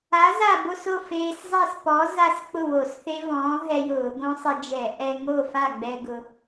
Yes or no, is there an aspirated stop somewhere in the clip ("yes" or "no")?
no